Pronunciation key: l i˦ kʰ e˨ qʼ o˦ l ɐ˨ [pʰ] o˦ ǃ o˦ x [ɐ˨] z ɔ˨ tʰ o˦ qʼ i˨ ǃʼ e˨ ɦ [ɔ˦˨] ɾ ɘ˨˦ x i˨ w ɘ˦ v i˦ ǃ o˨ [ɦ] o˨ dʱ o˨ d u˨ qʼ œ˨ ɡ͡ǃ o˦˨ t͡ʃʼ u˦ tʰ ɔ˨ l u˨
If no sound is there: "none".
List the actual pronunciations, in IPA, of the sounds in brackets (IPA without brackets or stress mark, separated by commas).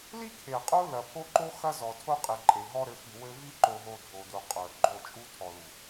pʰ, ɐ˦, ɔ˦, ɦ